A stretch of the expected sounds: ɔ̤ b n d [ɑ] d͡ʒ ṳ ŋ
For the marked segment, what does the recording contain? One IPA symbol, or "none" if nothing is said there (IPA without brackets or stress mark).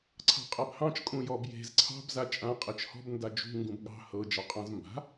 a